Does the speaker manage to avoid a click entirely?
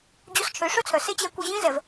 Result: yes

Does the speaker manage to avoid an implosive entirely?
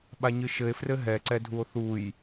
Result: no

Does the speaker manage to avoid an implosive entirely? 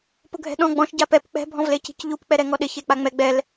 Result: no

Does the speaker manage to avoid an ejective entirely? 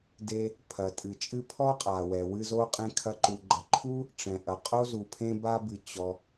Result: no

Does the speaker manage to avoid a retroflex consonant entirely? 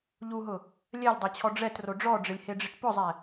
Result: no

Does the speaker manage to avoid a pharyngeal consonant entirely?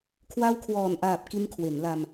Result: yes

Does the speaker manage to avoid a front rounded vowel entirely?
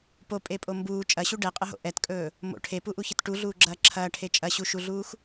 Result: yes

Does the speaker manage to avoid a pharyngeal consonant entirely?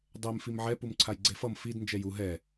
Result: no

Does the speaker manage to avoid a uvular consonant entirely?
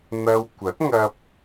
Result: yes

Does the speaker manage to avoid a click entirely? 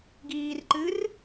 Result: no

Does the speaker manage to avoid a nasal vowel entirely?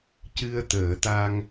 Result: yes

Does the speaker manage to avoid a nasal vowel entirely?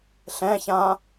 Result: no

